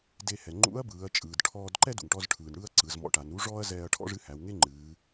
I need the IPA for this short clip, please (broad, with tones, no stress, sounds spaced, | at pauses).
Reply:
d e˧ h ɛ˩ ŋ͡ǃ ṵ˧˥ ɐ̯ b ɯː˩˧ ɐ̯ t͡ʃʼ ɯː˩ d ʈʰ ɔː˧ d ǃ ɛ˥ d ṵ˩ ŋ ʈ ɔ˧ z ʈʰ ɯː˩ n ɽ ɯː˥ ɐ̯ ǀ ɯ˩˧ z m ɔ̰˧ ʈ a˩˧ n ɾ u˧˥ ʐ ɔː˥ ɐ̯ z ɛː˧ ɐ̯ ʈʰ ɔ̰˥ ʐ ɨ˧˥ h æ˩˧ w ŋ e˥ ŋ͡ǃ ɨː˩˧